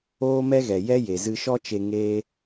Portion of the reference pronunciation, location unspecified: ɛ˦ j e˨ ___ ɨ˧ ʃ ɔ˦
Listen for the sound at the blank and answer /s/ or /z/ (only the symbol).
z